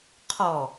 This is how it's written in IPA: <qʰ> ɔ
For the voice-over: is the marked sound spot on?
yes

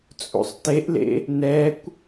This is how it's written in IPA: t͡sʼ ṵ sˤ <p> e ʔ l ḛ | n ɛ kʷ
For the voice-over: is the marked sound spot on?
no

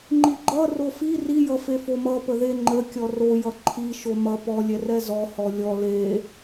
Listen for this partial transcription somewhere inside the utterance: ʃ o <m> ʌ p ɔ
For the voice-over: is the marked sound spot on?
yes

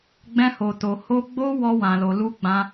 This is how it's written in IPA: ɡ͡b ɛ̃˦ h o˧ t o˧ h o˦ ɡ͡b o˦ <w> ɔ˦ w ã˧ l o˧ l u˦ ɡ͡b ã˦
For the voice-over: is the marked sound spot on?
yes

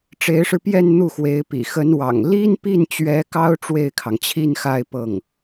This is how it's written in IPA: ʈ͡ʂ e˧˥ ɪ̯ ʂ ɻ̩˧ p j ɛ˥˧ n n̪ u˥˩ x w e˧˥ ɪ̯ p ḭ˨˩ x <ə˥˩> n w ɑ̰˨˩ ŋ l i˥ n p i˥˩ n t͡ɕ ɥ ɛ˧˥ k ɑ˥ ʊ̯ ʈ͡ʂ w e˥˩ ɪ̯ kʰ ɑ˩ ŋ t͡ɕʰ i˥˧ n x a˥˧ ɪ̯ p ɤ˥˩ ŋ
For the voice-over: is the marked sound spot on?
no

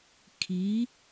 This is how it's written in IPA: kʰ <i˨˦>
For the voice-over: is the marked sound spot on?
yes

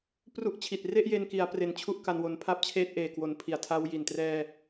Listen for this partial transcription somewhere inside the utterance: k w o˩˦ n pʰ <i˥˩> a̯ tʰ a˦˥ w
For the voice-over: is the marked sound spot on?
no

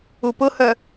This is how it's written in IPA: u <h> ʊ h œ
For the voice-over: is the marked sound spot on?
no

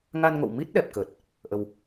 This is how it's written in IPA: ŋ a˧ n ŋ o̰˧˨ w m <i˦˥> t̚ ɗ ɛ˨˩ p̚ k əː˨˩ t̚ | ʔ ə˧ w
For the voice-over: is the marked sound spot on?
yes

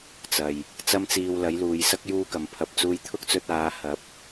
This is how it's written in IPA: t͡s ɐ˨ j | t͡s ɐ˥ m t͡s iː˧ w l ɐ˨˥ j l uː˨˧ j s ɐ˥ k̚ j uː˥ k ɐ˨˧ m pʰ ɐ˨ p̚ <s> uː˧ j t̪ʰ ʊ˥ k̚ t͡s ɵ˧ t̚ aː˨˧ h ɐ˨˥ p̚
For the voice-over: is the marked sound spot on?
no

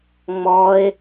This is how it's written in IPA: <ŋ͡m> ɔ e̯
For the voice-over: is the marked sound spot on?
yes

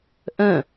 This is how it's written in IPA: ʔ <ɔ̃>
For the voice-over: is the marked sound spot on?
no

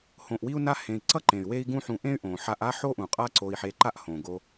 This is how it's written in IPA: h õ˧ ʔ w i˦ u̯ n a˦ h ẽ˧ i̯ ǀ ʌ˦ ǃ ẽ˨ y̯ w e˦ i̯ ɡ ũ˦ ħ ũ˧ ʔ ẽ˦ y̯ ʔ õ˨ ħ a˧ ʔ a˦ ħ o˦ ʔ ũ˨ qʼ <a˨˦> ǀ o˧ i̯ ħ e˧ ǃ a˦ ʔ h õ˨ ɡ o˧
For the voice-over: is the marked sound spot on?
no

